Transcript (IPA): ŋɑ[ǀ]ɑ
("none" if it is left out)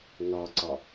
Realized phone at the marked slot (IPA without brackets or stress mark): ǀ